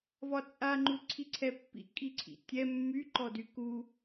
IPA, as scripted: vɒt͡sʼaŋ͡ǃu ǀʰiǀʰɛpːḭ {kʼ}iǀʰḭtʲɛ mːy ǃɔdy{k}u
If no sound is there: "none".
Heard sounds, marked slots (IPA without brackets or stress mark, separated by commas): kʼ, k